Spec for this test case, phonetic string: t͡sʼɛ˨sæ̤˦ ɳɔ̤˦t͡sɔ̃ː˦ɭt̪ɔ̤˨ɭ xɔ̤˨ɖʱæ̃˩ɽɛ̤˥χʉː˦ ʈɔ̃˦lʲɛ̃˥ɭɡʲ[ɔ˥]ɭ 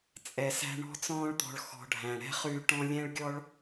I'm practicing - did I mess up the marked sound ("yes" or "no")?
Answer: no